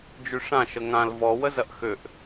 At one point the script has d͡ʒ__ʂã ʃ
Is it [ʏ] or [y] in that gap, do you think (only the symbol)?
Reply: y